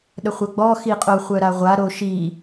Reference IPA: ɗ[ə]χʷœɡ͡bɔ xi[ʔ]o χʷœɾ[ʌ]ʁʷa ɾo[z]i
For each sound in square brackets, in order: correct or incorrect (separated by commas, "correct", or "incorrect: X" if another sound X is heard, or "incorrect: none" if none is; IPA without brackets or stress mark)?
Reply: correct, incorrect: qʼ, incorrect: a, incorrect: ʃ